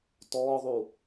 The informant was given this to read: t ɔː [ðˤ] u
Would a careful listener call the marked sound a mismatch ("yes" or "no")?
no